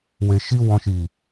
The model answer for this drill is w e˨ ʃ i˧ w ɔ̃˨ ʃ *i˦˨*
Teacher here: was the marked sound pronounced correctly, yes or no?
no